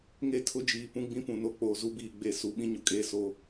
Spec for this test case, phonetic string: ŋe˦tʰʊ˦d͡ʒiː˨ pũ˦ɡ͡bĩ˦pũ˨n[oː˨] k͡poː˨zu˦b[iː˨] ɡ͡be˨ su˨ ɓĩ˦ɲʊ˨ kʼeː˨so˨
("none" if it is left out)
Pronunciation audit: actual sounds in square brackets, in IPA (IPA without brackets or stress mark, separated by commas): o˨, iː˨